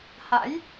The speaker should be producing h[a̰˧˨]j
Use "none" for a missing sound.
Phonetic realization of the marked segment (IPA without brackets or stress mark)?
a̰˧˥